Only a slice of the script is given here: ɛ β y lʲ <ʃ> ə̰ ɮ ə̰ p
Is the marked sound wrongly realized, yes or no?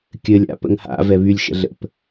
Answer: no